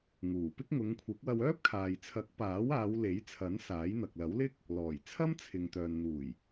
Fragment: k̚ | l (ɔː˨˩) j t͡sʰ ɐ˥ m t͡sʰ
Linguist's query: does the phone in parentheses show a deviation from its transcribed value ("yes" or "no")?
no